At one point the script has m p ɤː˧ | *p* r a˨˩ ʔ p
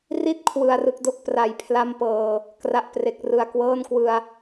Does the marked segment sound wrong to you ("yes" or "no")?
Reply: yes